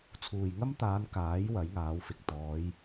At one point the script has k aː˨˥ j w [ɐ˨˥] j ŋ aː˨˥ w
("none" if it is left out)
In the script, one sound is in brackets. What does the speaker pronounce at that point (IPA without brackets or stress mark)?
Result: ɐ˨˥